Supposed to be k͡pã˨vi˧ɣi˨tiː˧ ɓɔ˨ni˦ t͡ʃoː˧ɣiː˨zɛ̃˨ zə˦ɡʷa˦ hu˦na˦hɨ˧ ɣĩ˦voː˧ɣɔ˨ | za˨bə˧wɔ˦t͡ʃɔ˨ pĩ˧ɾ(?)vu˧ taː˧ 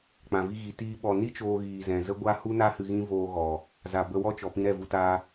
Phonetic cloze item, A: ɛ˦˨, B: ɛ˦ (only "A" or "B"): A